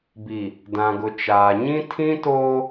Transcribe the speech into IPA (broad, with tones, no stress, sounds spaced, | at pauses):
b i˨ | d ã˨ ɡ ʊ˨ t͡ʃ aː˨ ɲ ĩ˦ tʰ ĩ˦ t oː˦